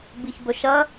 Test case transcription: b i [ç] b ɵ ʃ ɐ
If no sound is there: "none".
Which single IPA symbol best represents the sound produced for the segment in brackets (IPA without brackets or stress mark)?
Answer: ç